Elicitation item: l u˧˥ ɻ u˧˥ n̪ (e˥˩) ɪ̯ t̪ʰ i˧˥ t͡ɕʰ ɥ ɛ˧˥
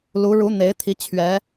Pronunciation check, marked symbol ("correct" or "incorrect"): incorrect